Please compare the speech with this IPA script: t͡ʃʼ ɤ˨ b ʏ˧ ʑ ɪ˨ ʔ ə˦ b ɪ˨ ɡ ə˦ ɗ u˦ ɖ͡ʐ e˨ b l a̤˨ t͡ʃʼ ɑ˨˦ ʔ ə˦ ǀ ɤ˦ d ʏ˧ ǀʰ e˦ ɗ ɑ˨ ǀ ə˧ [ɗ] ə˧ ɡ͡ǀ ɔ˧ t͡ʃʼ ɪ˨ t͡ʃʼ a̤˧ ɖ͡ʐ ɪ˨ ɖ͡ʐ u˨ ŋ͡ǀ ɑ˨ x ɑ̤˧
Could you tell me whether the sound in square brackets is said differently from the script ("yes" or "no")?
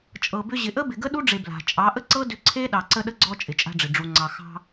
no